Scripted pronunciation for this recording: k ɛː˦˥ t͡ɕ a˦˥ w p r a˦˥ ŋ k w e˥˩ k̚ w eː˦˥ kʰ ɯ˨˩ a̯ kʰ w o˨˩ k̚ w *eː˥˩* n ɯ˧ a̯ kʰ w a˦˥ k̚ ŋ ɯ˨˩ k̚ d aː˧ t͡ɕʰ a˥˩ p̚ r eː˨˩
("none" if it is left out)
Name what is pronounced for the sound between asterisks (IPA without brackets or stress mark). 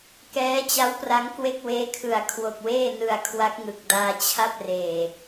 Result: eː˥˩